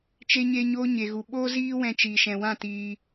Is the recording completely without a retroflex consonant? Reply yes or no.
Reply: yes